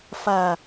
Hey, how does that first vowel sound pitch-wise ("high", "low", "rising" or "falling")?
low